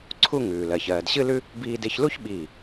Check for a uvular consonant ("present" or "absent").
absent